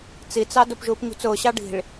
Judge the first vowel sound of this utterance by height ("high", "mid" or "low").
high